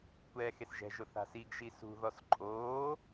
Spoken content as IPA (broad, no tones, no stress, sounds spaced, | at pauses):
kʷ ɛː x e s ʒ ɛ̤ ʒ ʊ θ a̤ s i ɡ ʒ i s ṳ ð ɔ s ǃʼ oː